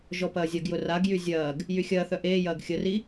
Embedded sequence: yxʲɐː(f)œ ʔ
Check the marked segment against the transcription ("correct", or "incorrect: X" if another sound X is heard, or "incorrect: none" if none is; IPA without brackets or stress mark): incorrect: θ